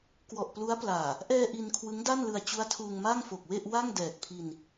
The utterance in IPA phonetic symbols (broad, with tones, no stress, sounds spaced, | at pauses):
k w ɔ˨˩ ʔ p l u˦˥ a̯ p l aː˨˩ | ʔ ɛː˧ ʔ i˧ n kʰ w ɯ˦˥ ŋ d a˥˩ n l ɯ˧ a̯ t͡ɕ u˦˥ a̯ tʰ uː˧ ŋ m aː˥˩ ŋ f o˨˩ k̚ w e˥˩ ʔ w a˥˩ ŋ d ɛː˨˩ k̚ pʰ i˧ n